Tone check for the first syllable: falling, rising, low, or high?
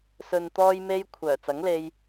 low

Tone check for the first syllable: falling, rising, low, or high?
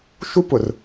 high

